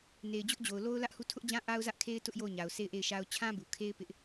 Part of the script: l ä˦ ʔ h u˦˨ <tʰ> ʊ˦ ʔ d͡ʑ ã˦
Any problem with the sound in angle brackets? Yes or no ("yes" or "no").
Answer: no